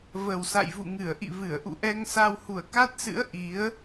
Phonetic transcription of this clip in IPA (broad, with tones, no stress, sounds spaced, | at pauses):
v ə˨˩ w s a̰˧˨ j v ṵ˧˨ ŋ ɨ˧˩ ə̯ ʔ ḭ˧˨ v ɨ˧˩ ə̯ ʔ ṵ˧˨ ʔ ɛ˧ ŋ s a˧ w h u˧˩ ə̯ k a˦˥ t̚ s ɨ̰˧˥ ə̯ ʔ i˨˦ ə̯